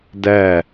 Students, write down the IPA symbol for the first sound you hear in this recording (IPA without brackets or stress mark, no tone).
d